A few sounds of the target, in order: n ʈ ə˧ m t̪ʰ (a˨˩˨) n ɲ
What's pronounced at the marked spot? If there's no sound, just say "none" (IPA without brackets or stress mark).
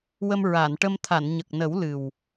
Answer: a˨˩˨